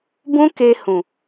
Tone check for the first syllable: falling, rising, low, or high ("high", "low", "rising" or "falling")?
high